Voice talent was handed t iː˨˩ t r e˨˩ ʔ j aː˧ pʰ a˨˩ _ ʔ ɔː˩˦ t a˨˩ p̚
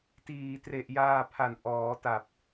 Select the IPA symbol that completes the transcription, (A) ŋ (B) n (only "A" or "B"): B